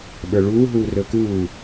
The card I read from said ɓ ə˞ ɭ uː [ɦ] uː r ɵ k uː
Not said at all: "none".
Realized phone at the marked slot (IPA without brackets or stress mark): ɦ